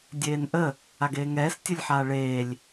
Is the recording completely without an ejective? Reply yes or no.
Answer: yes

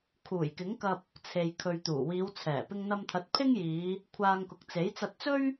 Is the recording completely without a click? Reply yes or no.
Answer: yes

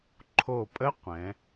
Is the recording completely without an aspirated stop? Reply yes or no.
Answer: no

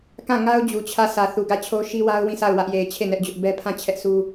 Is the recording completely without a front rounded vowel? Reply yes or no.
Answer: yes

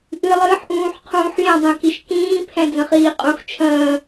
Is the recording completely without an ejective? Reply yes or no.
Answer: no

